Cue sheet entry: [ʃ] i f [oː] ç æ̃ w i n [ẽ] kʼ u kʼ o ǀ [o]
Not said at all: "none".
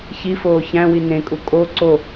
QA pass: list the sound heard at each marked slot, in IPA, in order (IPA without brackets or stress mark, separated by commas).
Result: ç, oː, ẽ, o